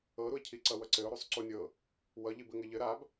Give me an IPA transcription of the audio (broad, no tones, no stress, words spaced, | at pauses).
ɤɾuɪ̯cʰi ǀʌwʌǀɘʊ̯ ɾusˤǀunʲɤ | wʌʎib ɘŋɘʎɘ ɾab